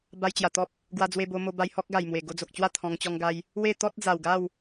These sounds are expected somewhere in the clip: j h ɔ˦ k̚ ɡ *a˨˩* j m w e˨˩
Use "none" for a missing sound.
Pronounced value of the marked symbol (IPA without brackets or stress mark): a˨˩